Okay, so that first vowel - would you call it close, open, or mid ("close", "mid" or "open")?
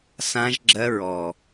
open